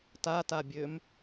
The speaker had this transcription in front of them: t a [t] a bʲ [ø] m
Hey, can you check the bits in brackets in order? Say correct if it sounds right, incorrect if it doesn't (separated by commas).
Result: correct, correct